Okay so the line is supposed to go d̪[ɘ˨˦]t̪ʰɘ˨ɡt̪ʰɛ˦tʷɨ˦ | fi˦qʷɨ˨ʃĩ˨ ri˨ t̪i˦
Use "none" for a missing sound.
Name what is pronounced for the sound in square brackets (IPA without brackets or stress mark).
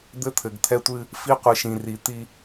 ɘ˦